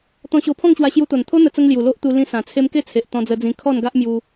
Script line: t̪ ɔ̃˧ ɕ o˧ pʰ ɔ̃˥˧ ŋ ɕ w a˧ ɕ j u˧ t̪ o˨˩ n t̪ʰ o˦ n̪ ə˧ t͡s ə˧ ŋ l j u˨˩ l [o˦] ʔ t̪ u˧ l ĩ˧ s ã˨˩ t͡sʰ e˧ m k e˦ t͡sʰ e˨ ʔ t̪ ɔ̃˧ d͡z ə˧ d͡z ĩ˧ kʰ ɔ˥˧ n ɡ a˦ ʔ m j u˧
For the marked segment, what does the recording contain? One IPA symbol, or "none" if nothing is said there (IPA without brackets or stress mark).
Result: o˦